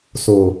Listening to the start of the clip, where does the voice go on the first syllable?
low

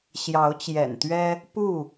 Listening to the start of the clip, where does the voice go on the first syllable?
rising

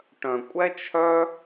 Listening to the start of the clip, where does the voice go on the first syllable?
low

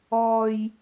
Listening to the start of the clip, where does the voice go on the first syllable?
low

